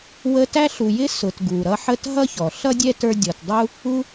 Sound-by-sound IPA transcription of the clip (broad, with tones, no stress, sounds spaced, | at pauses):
w ə˦ t æ˥ ɬ u˨ j ɪ˥ s ʊ˨ t ɡ u˩ ɾ ʌ˦ ħ ə˥ t ɦ ʌ˥ ç ɔ˩ ɬ ʌ˥ dʲ ɛ˥ t ə˞˦ dʲ ɔ˨ t dˤ u˥ | u˦